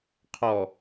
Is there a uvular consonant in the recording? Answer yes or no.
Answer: yes